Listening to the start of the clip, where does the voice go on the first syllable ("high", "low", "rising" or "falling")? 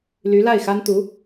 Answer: rising